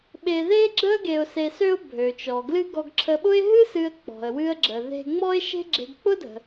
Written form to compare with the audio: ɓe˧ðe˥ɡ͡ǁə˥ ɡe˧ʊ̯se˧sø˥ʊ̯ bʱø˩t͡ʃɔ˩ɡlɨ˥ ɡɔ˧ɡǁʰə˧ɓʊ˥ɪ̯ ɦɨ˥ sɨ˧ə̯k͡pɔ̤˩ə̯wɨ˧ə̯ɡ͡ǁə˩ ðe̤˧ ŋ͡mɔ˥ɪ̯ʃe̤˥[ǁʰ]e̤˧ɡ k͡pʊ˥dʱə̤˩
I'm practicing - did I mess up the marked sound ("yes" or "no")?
yes